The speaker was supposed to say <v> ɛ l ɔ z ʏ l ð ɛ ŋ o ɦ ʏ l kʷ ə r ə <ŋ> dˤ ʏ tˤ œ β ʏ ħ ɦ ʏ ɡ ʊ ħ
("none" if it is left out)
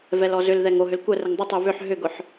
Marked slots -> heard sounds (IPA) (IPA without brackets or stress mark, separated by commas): v, ŋ